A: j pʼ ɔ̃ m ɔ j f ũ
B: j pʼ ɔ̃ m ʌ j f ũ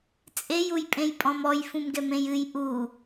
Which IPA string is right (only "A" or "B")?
A